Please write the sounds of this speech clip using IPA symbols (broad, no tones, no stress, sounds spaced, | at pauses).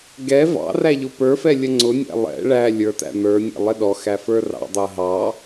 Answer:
ɡ ɛ v ɑ̰ r æ ʎ ʊ p ə˞ f ɛ lʲ ə ŋ͡ǀ ʊ nʲ æ̰ lˠ ɛ̰ ɭ æ lʲ ə˞ t æ̰ n̪ ə˞ nʲ ɛ̰ lˠ ɪ ɗ ɔ x æ f ə˞ r ɑ̰ dˤ ʊ ɐ̯ ɦ ɑ